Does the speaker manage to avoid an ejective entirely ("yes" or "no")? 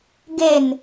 yes